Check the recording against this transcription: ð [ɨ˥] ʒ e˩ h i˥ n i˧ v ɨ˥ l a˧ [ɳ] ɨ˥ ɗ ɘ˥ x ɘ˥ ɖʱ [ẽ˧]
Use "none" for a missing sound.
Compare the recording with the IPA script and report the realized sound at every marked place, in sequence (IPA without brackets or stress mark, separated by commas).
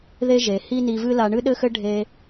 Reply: e˥, ɳ, e˧